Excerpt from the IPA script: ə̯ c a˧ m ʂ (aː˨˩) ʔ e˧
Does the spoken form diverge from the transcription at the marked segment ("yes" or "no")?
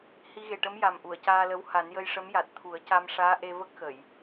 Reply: yes